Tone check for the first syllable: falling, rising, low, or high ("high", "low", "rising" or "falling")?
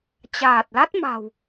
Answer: low